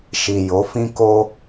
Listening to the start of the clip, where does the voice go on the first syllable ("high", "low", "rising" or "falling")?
low